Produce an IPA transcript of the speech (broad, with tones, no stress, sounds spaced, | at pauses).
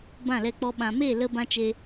b ã˦˨ l ɛ˧ k͡p ɔ˧ ɓ ã˨ m e˦˨ l ə˧ b ã˦ t͡ʃ e˧